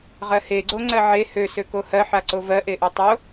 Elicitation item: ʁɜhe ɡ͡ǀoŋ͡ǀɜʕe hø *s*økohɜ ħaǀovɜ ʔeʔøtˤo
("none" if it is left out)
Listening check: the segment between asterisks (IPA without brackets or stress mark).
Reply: s